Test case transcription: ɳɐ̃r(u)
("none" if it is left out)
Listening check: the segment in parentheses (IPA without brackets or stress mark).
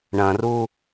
u